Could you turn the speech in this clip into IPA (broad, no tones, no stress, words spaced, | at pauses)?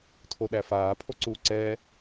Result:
tʰoɗæfaː pʰoǀuːǀɛː